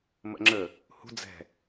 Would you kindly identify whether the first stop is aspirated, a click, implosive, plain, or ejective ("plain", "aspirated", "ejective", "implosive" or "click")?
click